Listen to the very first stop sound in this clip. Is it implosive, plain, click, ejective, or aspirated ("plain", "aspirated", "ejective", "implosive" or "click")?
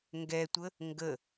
plain